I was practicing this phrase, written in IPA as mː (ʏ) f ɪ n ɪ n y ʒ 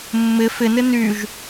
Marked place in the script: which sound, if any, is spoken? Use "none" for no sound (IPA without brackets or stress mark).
ɪ